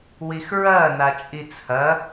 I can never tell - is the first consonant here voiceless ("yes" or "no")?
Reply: no